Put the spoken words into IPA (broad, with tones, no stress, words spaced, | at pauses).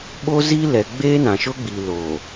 ɓo˦zi˦lɛ˨ ɡ͡beː˦nã˨ʃʊ˦ ɡ͡bi˨lo˨